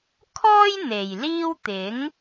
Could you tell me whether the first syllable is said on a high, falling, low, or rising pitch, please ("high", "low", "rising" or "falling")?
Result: high